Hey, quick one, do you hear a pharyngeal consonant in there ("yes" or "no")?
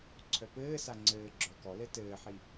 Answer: yes